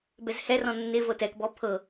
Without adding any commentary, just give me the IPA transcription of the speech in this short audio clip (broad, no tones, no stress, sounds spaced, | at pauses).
b ɛ z h ɛ r ɔ̃ nː ɪ v ɤ t ɛ k b ɔ pʰ ɤ